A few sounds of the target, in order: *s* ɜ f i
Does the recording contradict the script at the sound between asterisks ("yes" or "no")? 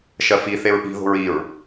yes